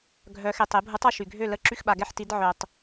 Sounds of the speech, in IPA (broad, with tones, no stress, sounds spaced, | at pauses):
ɡʱ œ˩˧ x e˩ tˤ e˩˧ bʱ u˩˧ tˤ ɔ˩ ʃ y˩ ɡʱ ø˥˩ l ə˥˩ ǁ y˥˩ x ɓ a˩ ɡ ɛ˥˩ ħ t i˩˧ d ʕ œ˩ tˤ